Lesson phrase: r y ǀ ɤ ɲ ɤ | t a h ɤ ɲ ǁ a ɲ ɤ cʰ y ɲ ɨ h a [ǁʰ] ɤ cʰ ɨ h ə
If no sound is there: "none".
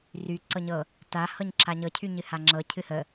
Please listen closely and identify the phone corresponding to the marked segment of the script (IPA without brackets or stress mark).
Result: ŋ͡ǁ